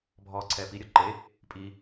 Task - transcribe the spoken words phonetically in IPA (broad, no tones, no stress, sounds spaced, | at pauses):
bʱ ɔː ǀʰ ɛː p i ɾʲ ɔ ǃ e | pʼ i